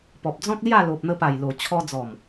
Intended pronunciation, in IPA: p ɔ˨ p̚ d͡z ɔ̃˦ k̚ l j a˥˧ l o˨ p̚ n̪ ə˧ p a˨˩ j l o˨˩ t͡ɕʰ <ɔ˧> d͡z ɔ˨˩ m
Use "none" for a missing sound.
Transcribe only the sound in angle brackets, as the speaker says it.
ɔ˧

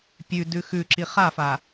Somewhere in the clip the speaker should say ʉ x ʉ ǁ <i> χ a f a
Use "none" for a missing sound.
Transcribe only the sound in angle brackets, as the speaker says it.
i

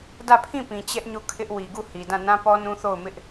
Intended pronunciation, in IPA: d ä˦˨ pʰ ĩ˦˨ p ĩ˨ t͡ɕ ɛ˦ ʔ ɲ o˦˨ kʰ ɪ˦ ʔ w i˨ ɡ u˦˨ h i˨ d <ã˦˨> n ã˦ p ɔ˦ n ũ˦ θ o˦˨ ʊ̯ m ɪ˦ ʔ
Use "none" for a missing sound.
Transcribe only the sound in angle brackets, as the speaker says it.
ã˦˨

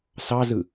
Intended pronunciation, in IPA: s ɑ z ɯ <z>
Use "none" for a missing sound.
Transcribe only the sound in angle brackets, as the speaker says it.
none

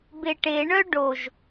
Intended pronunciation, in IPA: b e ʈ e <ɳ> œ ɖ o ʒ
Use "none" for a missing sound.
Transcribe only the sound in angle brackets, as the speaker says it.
ɳ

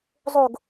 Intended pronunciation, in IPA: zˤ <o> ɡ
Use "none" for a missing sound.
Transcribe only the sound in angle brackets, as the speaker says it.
o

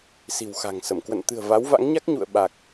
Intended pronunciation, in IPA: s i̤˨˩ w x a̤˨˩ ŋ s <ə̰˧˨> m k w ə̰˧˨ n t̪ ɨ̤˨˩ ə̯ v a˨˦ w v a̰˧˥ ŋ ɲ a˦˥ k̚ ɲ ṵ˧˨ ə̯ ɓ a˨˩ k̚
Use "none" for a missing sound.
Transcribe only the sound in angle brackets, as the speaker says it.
ə˧˩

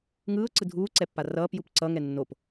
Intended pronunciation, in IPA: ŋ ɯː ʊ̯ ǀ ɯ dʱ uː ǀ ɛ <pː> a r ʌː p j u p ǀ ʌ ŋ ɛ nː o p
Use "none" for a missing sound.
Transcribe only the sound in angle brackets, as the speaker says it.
pː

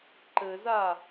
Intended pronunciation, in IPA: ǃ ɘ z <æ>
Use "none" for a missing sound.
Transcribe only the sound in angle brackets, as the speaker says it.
a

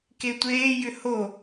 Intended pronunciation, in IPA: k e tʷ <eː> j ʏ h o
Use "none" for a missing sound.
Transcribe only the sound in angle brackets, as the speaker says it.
eː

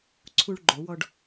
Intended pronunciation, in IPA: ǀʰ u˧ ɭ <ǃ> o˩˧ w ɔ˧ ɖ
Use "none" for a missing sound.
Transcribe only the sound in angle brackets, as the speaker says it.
ɡ͡ǃ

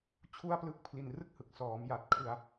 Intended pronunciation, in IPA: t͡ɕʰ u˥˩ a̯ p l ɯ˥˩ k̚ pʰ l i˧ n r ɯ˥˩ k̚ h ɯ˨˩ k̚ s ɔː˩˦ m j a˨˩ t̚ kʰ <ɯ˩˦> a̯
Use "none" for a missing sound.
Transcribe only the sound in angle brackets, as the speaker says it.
ɯ˧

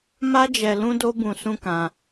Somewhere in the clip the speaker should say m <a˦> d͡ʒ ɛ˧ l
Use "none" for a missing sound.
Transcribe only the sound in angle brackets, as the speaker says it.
a˦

